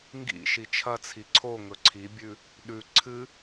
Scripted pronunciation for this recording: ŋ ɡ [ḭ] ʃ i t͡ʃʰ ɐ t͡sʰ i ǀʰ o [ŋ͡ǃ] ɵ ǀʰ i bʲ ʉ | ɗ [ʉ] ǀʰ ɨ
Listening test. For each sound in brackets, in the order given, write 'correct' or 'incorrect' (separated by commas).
correct, incorrect, correct